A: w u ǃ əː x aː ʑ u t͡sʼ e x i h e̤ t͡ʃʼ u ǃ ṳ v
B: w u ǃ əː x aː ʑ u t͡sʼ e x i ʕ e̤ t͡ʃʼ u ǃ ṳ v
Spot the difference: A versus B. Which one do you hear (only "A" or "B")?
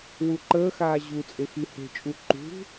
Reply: A